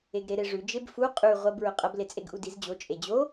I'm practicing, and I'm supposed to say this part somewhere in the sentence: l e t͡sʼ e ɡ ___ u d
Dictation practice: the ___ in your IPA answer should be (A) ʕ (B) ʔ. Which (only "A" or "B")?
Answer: B